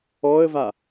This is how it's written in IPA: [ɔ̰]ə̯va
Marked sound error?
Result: yes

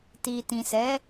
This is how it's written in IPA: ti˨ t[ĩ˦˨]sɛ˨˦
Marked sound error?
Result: yes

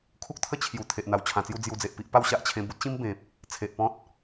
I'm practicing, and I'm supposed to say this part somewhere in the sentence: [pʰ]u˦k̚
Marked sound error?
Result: yes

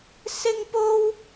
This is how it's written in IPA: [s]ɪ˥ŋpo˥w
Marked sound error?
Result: no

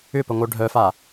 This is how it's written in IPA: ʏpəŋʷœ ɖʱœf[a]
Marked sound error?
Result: no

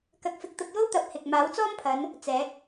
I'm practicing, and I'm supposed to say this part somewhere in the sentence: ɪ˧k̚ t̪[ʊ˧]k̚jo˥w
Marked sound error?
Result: no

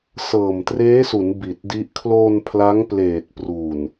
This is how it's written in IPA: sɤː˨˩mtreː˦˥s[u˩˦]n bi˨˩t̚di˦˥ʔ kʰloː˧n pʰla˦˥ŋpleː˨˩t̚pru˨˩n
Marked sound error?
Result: no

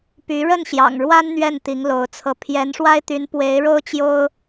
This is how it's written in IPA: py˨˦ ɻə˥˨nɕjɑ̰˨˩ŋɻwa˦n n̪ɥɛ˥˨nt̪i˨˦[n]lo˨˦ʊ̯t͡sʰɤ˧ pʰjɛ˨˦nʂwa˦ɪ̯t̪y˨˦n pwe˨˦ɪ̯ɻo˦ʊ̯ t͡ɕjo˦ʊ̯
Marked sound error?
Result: yes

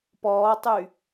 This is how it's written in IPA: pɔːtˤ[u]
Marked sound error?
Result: yes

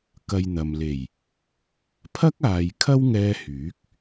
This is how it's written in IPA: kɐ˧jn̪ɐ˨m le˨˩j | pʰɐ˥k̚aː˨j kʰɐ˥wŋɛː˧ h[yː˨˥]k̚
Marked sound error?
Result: no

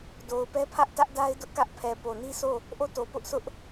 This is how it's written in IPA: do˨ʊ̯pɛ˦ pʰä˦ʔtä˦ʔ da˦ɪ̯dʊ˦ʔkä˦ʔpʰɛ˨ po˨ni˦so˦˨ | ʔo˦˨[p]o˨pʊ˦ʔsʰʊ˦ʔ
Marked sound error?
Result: yes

